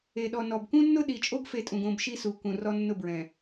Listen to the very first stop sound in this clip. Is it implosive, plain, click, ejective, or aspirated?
implosive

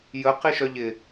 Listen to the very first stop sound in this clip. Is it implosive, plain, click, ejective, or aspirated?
plain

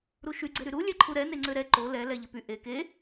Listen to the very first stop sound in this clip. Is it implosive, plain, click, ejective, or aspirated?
click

